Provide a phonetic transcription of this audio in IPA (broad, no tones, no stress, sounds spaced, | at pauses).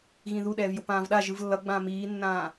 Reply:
ɣ ĩ ð u ɗ ɛː v j o p ãː v ɗ a ʒ ɯ v lː ʌ ɡ͡b ãː m iː nː ãː